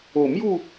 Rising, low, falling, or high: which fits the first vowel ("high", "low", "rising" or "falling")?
low